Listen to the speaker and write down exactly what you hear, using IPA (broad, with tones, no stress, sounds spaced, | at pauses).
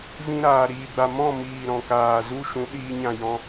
v ĩ˧ ɾ aː˨ ɾ iː˨ ɡ͡b a˨ m ɔ̃˦˨ m iː˨ ɾ ɔ̃˨ k aː˨ z u˦ ʃ ũ˨˦ ɗ iː˧ ɲ ã˦˨ j ɔ̃˦